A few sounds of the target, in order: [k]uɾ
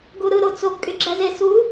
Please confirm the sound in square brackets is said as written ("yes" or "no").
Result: no